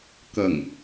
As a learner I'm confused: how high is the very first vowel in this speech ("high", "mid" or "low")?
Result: low